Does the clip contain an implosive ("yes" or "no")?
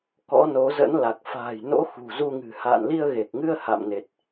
no